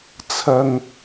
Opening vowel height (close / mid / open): open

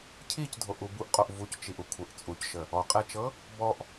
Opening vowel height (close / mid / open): close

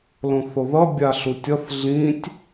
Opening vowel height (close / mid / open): mid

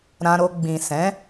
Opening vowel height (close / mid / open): open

